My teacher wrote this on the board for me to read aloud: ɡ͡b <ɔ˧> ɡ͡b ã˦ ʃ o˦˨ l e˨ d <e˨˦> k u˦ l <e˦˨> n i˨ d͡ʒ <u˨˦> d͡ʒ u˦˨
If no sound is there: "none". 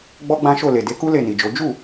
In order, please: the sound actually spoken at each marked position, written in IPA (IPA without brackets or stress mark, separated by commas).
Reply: ɔ˦, e˨˦, e˦˨, o˨˦